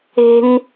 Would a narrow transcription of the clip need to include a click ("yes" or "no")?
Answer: no